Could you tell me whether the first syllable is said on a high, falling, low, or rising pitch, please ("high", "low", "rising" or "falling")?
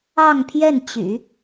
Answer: falling